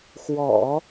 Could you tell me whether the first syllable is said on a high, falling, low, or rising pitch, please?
low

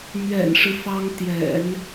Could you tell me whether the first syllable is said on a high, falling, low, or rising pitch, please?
low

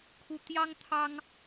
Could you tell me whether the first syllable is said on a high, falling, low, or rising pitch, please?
high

